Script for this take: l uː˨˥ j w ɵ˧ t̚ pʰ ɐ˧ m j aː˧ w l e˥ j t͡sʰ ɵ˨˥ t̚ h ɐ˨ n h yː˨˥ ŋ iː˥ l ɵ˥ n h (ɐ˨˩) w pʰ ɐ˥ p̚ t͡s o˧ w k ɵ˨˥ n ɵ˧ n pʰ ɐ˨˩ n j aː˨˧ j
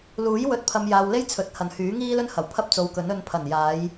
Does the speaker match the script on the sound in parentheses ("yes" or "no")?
yes